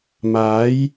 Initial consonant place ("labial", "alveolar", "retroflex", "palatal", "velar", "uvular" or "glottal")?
labial